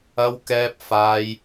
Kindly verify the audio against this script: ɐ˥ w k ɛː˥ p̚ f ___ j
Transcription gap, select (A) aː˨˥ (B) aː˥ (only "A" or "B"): B